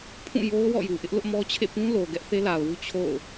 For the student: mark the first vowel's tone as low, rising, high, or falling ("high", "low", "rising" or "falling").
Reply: falling